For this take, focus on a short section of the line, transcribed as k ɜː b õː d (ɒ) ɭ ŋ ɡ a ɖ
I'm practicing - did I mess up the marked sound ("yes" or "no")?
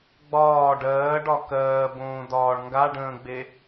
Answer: yes